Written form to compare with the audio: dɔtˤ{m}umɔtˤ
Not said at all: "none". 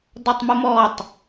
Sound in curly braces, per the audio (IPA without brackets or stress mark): m